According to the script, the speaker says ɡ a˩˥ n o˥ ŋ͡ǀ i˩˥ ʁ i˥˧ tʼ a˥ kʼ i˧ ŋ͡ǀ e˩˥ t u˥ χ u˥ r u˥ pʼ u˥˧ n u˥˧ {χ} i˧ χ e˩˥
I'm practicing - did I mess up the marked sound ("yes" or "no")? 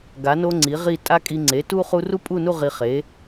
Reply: yes